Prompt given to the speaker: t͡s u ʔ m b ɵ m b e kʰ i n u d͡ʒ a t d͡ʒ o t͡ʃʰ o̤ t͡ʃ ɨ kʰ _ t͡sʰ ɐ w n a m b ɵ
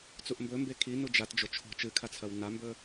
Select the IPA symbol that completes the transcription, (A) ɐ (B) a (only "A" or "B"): B